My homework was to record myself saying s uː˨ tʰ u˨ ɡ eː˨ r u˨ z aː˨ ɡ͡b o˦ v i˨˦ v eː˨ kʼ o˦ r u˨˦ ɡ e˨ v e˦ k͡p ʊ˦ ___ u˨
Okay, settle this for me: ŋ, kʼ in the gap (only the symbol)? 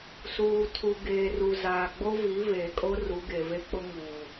ŋ